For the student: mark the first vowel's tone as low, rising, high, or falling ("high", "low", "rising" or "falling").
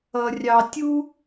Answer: low